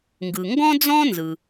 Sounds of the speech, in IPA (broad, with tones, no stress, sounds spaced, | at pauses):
ŋ ɡ ɯ˩ ŋ ɡ ɔ̃˥ d͡z ɔ̃˥ n z ɯ˩